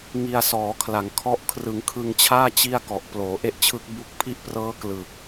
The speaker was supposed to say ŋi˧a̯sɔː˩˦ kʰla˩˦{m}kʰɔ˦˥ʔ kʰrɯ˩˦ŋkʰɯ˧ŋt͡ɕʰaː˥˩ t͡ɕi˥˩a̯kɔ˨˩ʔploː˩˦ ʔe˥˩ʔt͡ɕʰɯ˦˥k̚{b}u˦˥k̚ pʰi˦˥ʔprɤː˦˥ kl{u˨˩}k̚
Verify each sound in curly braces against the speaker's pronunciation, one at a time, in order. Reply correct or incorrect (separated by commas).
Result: incorrect, correct, incorrect